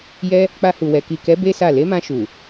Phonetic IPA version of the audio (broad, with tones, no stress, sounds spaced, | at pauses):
j ɛ˧ | k͡p a˧ h u˨ w ɛ˨ k i˨ k ɛ˨˦ b e˦ s a˦˨ l e˨˦ m ã˧ ʃ u˨